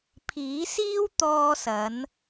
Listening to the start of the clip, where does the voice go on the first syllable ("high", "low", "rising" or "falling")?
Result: rising